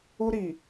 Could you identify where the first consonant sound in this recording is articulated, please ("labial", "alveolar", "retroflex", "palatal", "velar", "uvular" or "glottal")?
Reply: alveolar